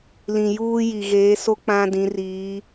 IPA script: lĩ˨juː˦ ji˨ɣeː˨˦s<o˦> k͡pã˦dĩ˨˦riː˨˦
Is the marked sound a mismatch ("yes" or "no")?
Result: no